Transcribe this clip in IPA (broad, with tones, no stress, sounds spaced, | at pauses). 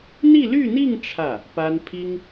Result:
n̪ i˥˧ l y˥˧ n̪ i˥˧ ŋ ʈ͡ʂʰ ä˥˩ | p a˥ n pʰ i˥ ŋ